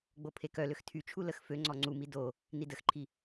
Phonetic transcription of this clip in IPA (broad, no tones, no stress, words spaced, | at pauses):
ɡ͡bopʰekœløx tʰyt͡ʃʰu ləxføŋ͡ǀɔ ŋ͡ǀumi do | nidəxǃʰi